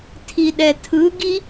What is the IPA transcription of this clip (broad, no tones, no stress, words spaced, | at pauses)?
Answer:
tʰiɗɛtʰɯɡi